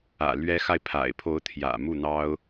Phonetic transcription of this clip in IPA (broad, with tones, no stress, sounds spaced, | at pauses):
ä̰˨˩ l ɥ ɛ˧˥ x a˧ ɪ̯ pʰ a̰˨˩ ɪ̯ pʰ o˧˥ ʊ̯ t̪ʰ j ä̰˨˩ m u˥˩ n̪ ɑ˥ ʊ̯